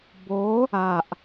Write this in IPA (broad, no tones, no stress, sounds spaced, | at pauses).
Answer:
b o | a ʔ